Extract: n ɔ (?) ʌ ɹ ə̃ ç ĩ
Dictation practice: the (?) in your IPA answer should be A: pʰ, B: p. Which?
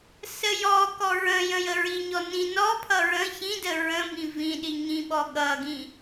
A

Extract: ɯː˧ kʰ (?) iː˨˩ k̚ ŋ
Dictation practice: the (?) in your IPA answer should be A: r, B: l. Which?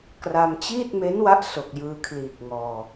B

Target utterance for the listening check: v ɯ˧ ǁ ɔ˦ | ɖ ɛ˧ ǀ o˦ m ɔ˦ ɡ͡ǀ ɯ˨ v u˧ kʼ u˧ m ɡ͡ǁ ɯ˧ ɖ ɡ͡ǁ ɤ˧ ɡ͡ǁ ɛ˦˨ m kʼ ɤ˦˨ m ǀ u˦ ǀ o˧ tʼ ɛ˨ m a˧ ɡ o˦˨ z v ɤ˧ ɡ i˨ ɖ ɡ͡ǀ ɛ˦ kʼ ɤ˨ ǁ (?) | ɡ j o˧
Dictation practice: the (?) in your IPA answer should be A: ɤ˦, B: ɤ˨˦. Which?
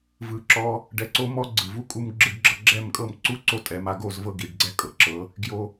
B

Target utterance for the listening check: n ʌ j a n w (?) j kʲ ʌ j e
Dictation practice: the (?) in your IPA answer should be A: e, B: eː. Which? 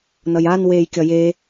B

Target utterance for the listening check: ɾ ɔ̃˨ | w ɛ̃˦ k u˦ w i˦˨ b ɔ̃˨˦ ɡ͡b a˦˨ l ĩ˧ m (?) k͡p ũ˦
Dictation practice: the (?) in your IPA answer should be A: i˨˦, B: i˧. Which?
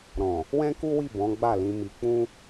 B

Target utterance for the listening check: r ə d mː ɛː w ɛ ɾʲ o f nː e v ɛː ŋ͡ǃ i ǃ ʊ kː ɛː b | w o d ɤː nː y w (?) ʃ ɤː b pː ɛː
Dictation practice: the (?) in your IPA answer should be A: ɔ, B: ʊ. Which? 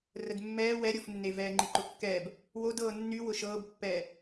B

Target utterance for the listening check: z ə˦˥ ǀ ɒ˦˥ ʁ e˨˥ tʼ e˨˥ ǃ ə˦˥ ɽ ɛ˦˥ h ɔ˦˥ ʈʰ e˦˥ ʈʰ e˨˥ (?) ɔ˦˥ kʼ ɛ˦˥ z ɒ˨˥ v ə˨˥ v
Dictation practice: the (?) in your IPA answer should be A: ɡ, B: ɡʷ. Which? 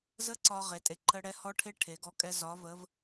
A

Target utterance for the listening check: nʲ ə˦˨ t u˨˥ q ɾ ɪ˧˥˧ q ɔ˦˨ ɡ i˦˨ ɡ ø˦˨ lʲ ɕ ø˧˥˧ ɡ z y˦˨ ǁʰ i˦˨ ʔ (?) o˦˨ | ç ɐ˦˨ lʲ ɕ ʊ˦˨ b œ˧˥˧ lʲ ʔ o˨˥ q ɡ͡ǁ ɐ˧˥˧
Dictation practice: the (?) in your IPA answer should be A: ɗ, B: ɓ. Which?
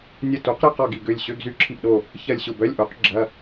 A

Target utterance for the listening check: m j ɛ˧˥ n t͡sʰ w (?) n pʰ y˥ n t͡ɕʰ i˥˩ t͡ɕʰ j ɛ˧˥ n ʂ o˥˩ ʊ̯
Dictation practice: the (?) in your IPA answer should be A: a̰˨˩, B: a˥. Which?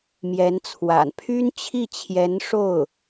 A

